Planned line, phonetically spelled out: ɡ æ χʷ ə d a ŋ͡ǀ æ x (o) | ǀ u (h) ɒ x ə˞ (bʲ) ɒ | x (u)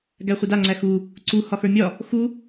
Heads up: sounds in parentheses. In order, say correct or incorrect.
incorrect: u, correct, incorrect: mʲ, correct

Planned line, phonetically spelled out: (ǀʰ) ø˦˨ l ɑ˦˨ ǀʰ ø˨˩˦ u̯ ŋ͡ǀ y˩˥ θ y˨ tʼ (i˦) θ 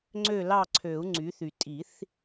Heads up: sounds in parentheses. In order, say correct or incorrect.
incorrect: ŋ͡ǀ, incorrect: i˨˩˦

